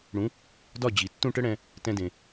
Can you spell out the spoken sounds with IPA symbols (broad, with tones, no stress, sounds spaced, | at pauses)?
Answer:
ɽ ũ˩˥ | d ɒ˥˩ d͡ʑ i˩ tː ũ˥˩ ʈ ə˥ ɽ ɛ̃˧ | t ɛ̃˧ d ẽ˩